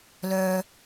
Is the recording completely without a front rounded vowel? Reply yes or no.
no